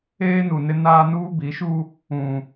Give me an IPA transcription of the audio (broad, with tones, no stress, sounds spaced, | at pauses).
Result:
eː˦ n u˨ n ɪ˦ n aː˦ n uː˦ b i˨˦ ʃ u˦ | ũ˨